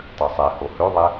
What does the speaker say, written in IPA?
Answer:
tˤ ø sˤ ɛ h o h ø ðˤ ɛ

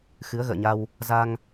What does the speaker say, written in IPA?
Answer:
x ɨ˨˦ ə̯ ɣ ə̰ː˧˨ ɲ a˧ w | z a˧ ŋ

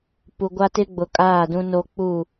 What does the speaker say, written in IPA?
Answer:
p u˨ ɡʷ a˦ t ɪ˦ ɡ͡b ʊ˨ kʼ aː˦˨ d ũ˦ n o˦ k͡p u˦˨

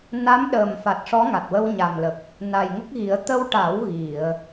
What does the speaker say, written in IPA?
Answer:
n a˧˥ m ɗ əː˨˩ m f a˨˩ t̚ ʂ ɔ˧˥ ŋ a˨˩ t̚ w ə˧ w ɲ a˨˩ m l ə˨˩ k̚ | n a˨˩ j ŋ ə˦˥ k̚ ɣ i˨˩˦ ə̯ t̪ ə˧ w ʈ a˨˩˦ w ɣ i˨˩˨ ə̯

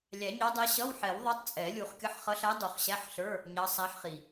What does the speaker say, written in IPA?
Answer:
lʲ æ˨˩˦ ɲ ɑ˧˥ dˤ æ˧˥ ɕ ʌ˧˥˧ w ħ ɛ˨˩˦ w ðˤ ɑ˧˥ tˤ t͡sʼ ɛ˨˩˦ lʲ u˨˩˦ χ kʲ ʌ˧˥˧ ħ χ ʌ˧˥ ɬ æ˧˥ dˤ u˨˩˦ χ ɕ æ˧˥˧ ħ ɬ ə˞˧˥˧ | ɲ ɑ˧˥ sˤ æ˧˥ ħ χ i˨˩

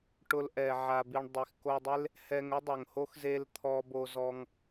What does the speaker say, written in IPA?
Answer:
ʈ ʊ˦ l ʔ ɛ˧ ʕ a˧ b i˧ ɳ dˤ i˨ x k o˧ dˤ e˦ l | h ɛ˧ ŋ ʊ˦ dˤ o˨ ŋ h o˦ x z e˧ l t̪ʰ ɔ˧ b o˧ z ɔ˧ ŋ

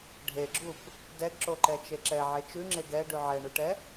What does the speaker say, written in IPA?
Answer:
ɖʱ e ɡ͡ǁ u p | d ɛ ɡ ǁ o ǃ ɛ t͡ʃ e ǁ ɛ ʕ e t͡ʃ ʉ ŋ͡ǁ e ɡ ɛ ɖ ʉ ʕ ɛ ɳ u ʈ ɛ

